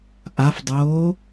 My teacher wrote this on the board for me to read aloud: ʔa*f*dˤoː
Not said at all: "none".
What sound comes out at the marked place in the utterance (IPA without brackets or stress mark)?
f